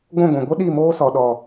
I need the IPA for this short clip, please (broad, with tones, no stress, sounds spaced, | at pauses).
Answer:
ɡʷ ũ˦˨ ɡʷ ĩ˨ ɡʷ ɨ˦ ɗ i˦˨ m oː˦ s ɔ˨ ɗ ɔ˨